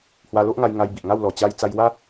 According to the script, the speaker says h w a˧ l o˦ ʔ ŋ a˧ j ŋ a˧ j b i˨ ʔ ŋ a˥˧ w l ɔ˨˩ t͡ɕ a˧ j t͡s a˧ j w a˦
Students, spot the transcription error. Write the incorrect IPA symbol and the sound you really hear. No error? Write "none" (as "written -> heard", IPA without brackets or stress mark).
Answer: none